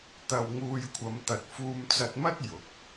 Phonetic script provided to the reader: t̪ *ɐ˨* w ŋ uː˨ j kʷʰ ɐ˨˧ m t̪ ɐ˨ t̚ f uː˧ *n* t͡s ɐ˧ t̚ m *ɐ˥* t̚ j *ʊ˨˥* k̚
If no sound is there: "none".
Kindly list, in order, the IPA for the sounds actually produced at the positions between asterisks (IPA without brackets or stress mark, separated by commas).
ɐ˨, m, ɐ˥, ʊ˨˥